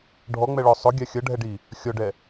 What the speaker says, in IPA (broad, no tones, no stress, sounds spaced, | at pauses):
ɖʱ ɔ ŋ͡m ɛ ɭ ɔ sˤ ʊ ɡʲ ɑ xʲ ʌ ɖʱ ɛ ɖ i | xʲ ɔ ɖ ɛ